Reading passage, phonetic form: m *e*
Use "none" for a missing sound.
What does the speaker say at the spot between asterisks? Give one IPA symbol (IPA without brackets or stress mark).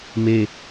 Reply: e